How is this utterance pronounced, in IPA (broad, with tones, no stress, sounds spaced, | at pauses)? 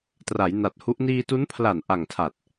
t r a˩˦ j n a˨˩ t̚ h u˦˥ ʔ n iː˧ t u˦˥ n pʰ l a˨˩ n ʔ a˨˩ ŋ tʰ a˨˩ t̚